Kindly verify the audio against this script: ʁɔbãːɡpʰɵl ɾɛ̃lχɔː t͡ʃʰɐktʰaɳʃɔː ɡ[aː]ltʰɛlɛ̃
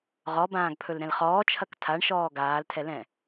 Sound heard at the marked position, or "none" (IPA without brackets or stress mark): aː